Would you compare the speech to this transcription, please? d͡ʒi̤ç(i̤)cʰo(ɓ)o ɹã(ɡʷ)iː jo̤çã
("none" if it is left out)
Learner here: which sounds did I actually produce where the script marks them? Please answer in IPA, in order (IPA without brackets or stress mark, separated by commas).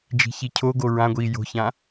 i, ɡ, ɡʷ